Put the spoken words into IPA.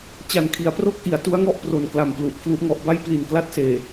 t͡ɕ a˨˩ n kʰ i˩˦ a̯ p r o˥˩ k̚ ʔ i˩˦ a̯ t u˦˥ a̯ ŋ ɔ˥˩ ʔ p r o˨˩ n k l a˨˩ m p l u˨˩ ʔ pʰ l u˦˥ ʔ ŋ ɔ˦˥ ʔ b a˥˩ j p l i˨˩ n k l a˦˥ t̚ s eː˨˩

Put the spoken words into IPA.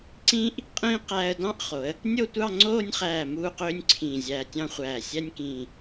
ǀ ĩː˥ ʔ | qʼ ĩː˥ q æː˧ ə̯ d ɑ̃˥˧ ʔ χ o˩˧ ə̯ | nʲ o˥˧ tʷ ɑ˥˧ ŋ͡ǀ oː˥˧ nʲ χ æː˧˩ m uː˥˧ q øː˥ nʲ ǀʰ ĩː˧˩ zʲ æː˧ tʲ ɑ̃˥ χʷ æː˧˩ sʲ æ˥ nʲ k ĩː˧˩

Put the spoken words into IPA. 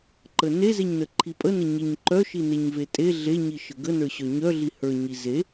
ǃ ə n e z e ɲ n ə ǃʰ i pʼ ə n ə ɲ e ɲ ǃ œ ʃ i n e ɲ v e tʼ e ɮ e ɲ i ʃ ə ɡ ə n ə˞ ɕ œ ɲ œ ɮ i h ə˞ ɲ i z e

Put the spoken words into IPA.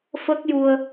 f ə˦˥ k̚ j u˧ ə̯

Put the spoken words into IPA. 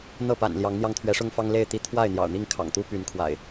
n̪ ɤ˥˨ p a̰˨˩ n l j ɑ˨˦ ŋ n̪ j ɑ˧ ŋ t̪ʰ ɥ ɛ˨˦ ʂ ʊ˦ ŋ f ɑ˦ ŋ l e˥˨ ɪ̯ t̪ i˦ t̪ʰ w a˥˨ ɪ̯ n̪ j ɑ̰˨˩ ʊ̯ n̪ i˥˨ ŋ kʰ ɑ̰˨˩ ŋ t̪ u˦ p y˨˦ n kʰ w a̰˨˩ ɪ̯

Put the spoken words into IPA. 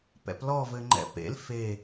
p ɛ̰ p l ɔ v ɘ ŋ͡ǃ ɛ̰ p ḛ l f e

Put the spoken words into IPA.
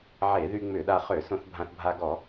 ʕ e˧˩˧ ð y˧ ŋ͡m ʏ˧˩˧ ɗ a˧ χ ø˧˩˧ s õ˧ θ bʱ ã˧ θ bʱ a˧ ɡ ɔ˧˩˧

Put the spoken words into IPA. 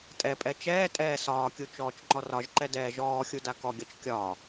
tʼ ɛ pʼ ɛ t͡ʃ ɛː tʼ ɛː s ɒː kʲ u t͡ʃ ɔː t͡ʃ ŋ͡ǃ ɔ r ɒ ʒ ǃ ɛ d ɛː ʒ ɔː xʲ u d a k ɔ ɡʲ ɒ t͡ʃ kʲ ɒ

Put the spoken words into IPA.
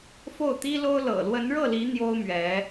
f o˥˩ ʊ̯ t̪ i˥ l o˥ ʊ̯ l ɤ̰˨˩ l w ə˧˥ n ɻ ɤ˥˩ l i˧˥ n̪ j o˥ ʊ̯ m ɥ ɛ˧˥

